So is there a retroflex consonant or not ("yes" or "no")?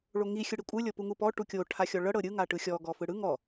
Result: yes